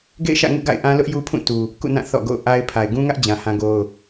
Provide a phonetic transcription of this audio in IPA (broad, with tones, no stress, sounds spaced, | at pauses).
ɡ ḛ˦˨ ɪ̯ ʃ ä̰˦˨ ŋ ṵ˦˨ ɡ a̰˦˨ ɪ̯ ʔ ã˦ l ʊ˦ ʔ j u˦ pʰ ũ˦˨ t u˨ | k ṵ˦˨ n ã˦˨ θ ɔ̰˦˨ ɡ o̰˦˨ ʊ̯ ʔ a˦ ɪ̯ pʰ a˨ ɪ̯ ɡ ũ˦ ŋ ä˦ ʔ d͡ʑ ã˨ h ã˦ ɡ o˦ ʊ̯